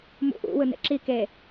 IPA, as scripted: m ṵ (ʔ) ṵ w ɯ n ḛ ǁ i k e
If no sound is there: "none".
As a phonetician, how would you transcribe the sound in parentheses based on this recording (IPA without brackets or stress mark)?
ʔ